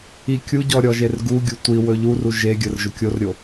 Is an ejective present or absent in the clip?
absent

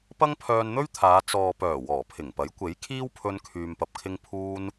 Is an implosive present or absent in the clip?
absent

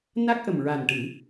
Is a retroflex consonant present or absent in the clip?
present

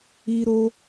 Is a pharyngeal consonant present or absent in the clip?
absent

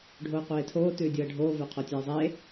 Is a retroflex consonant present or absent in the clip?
present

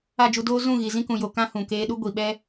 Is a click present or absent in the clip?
absent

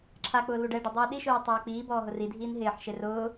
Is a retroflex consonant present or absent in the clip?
present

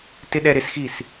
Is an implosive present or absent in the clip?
present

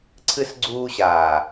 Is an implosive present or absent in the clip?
absent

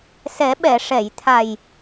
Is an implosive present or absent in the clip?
present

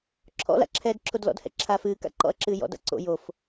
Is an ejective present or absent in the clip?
absent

